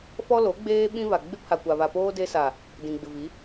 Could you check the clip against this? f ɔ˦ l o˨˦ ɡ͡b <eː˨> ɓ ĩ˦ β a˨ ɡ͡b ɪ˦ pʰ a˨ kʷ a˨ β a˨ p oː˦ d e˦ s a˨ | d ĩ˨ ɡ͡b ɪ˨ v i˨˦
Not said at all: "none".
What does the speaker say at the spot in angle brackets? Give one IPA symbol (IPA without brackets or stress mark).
eː˦